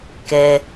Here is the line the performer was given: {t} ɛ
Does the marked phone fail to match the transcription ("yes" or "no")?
yes